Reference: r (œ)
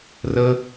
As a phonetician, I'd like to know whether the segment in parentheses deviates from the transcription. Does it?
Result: yes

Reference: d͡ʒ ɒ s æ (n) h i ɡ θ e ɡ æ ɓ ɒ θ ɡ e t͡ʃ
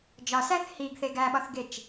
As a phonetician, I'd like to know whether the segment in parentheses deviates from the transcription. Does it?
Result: yes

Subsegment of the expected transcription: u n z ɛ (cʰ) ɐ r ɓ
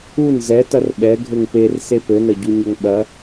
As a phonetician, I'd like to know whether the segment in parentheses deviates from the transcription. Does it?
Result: yes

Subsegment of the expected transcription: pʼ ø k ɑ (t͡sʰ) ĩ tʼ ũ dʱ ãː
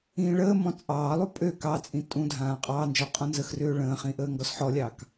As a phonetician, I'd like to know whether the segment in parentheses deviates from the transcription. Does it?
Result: yes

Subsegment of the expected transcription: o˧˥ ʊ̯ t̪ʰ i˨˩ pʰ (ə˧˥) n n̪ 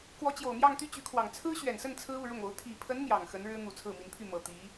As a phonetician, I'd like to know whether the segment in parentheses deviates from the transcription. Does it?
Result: no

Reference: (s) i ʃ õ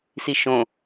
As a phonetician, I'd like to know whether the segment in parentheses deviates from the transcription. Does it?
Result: no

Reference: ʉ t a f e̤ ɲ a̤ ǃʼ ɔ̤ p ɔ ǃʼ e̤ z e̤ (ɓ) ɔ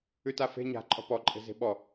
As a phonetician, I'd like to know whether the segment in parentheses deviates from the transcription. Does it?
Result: no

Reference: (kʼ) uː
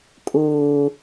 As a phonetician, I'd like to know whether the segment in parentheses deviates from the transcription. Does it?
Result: no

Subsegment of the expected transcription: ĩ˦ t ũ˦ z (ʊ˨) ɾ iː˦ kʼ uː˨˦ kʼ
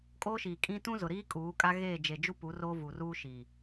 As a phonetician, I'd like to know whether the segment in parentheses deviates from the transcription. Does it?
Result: no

